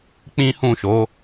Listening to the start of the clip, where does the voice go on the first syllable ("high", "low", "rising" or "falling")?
high